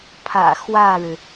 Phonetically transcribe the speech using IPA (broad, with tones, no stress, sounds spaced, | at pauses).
pʰ ä̰˨˩ x w ä˥˩ ɻ ɻ̩˩